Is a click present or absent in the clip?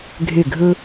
absent